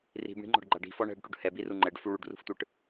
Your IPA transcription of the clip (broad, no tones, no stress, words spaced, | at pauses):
ri̤bɳi̤ŋ͡ǃɔ̤ɖɡ͡ǃa ɖi̤fɔ ɳɛ̤ɖʈuɖ hɛbiru ŋ͡ǃɛɖfu ɭuɖrṳftʷɯʈ